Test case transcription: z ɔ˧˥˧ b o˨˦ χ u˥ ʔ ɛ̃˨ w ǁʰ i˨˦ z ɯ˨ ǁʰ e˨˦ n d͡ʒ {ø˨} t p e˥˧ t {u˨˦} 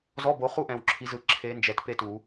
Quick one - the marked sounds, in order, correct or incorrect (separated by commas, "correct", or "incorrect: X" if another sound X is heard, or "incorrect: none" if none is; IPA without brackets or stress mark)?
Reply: incorrect: ɛ˨, incorrect: u˨˩˦